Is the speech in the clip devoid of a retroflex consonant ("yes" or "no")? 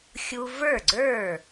yes